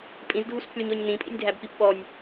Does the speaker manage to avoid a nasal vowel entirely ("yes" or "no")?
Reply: no